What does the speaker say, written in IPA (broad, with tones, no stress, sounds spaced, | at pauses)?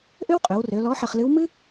ʔ ø˥ w qʼ ø˩˧ w r ø˩˧ l ɔ˧˥ ħ ə˧ χ l ɨ˧˥ w m ɨ˥